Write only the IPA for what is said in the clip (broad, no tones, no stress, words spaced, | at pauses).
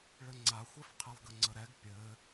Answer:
ɭɘŋ͡ǀaxʷɛfqʰɘlˠ ɡəŋ͡ǀəɾɛɡ pʲɘ